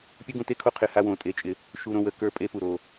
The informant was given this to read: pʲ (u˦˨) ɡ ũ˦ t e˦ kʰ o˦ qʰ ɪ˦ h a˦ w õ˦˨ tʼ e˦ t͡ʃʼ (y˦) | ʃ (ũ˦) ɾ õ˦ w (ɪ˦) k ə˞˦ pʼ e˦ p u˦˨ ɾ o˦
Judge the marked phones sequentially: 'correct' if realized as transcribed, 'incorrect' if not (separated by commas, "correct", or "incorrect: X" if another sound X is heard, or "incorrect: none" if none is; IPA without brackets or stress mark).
incorrect: u˦, incorrect: ɪ˦, incorrect: u˦, incorrect: ə˦